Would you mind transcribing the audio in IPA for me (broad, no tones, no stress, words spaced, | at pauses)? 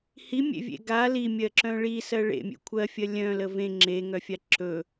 himʲḛvʲḛ ɡa limʲɜǁœ̃ ɭisɜ ɭḛmʲḛ kʷʰɜfʲɜ lʲœ̃lə vẽ ŋ͡ǁeŋœfʲa ǁɵ